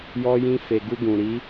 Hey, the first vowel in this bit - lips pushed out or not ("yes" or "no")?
yes